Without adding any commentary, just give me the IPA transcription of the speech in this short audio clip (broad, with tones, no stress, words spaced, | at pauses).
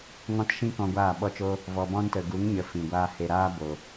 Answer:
ŋɔ̃˦t ʃĩ˦ kɔ̃˧ɡʷaː˦˨ɓɔ˦t͡ʃo˦ | vɔ˨bɔ̃˦ntə˨ ɡu˨˦ŋɲə˨ fĩ˨ɡʷaː˦he˧ ɾaː˦bo˨